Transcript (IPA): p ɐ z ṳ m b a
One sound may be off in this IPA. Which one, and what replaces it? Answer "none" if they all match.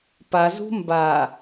ɐ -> a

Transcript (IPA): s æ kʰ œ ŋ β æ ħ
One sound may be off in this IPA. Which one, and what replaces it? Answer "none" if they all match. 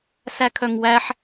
β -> w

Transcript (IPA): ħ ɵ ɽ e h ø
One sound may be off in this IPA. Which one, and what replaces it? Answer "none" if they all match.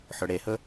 ø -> ɵ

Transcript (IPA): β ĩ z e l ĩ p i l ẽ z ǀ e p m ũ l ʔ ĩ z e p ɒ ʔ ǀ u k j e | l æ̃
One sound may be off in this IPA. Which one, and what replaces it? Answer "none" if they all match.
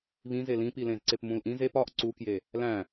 none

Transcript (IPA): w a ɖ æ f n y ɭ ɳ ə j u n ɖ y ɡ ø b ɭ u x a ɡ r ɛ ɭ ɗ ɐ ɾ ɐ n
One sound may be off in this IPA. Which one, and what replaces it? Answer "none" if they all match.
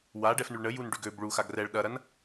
æ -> ɛ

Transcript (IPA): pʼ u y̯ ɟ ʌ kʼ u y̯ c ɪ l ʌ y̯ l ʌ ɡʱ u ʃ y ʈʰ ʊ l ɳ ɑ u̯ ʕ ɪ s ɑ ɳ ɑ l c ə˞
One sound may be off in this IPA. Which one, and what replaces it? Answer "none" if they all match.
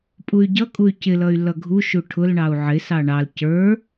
y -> u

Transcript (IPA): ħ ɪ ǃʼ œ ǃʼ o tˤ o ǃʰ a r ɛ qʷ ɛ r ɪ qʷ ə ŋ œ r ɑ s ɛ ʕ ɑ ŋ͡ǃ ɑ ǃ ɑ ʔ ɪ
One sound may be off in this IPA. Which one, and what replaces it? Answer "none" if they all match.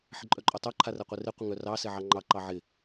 ʔ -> ʕ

